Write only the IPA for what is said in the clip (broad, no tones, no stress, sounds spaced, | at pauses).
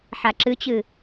ħ a ǁ ɨ t͡ɕ ɨ